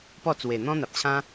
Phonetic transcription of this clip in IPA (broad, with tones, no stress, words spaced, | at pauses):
pɔ˥˧t͡swe˨˩ n̪ɔ̃˦n̪a˨p̚t͡ɕʰã˦